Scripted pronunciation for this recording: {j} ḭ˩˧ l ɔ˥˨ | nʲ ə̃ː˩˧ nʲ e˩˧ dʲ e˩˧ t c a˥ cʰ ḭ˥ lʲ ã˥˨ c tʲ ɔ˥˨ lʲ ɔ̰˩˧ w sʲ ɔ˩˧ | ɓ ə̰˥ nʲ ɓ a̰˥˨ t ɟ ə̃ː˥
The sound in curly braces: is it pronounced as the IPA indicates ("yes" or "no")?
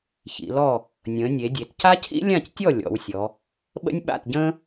no